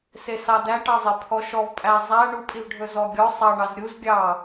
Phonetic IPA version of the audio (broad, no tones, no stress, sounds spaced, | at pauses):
s e s ɑ d æ ʈ ɑ zˤ e pʰ ɔ ʃ ɔ v pʼ æ zˤ æ ɳ u pʼ i v ɖʱ ɵ z ɔ ɡʲ ɔ sˤ ɑ ɳ ɑ z ɾʲ u z ɡʲ ɑ